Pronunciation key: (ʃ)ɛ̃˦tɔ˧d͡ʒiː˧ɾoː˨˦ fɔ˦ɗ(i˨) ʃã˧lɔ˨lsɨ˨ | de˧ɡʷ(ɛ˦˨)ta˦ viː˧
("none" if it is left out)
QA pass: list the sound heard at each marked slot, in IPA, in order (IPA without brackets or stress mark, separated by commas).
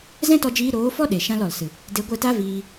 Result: z, e˨, ɛ˦˨